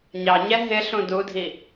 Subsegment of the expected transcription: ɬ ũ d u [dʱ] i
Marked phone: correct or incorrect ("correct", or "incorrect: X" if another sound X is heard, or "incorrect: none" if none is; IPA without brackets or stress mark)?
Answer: correct